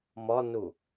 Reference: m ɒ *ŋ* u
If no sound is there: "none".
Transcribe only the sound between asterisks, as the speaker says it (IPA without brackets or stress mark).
n